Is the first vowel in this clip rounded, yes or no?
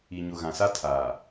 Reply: no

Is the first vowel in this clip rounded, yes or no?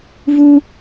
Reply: yes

